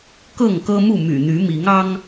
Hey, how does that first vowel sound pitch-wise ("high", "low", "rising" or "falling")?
falling